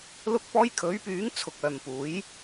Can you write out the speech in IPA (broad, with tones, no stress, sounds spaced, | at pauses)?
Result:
l ʊ˧ k̚ p ɔː˧ j kʰ ɵ˨˥ ɥ p yː˨˥ ŋ t͡sʰ ʊ˨ k̚ œː˨ m p uː˨˥ j